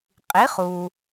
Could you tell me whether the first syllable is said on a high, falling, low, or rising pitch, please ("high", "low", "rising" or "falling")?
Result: rising